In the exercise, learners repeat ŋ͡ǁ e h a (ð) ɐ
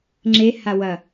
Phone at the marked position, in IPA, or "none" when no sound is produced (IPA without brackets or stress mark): w